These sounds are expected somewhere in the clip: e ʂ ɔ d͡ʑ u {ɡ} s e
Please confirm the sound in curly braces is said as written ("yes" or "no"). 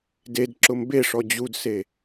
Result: no